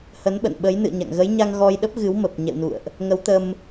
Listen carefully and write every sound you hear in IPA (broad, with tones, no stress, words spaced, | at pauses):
hə˨˦n ɓə̰˧˨nɓə˨˦j nɨ̰˧˨ə̯ɲa̰˧˨ŋ ɣə˨˦jɲa˧ŋ ɣɔ˧jɗə˦˥p̚ɣɨ˨˦wmə˨˩p̚ ɲɛ̰˧˨wnṵ˧˨ə̯ʔ | ŋə˨˦wt̪ə˧m